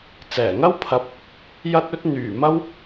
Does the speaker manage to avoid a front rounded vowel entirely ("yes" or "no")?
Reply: no